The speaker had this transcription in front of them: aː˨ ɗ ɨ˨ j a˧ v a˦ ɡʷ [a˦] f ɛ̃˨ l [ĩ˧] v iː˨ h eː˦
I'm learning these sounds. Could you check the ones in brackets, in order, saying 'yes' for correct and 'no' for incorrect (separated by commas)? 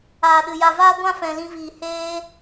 no, yes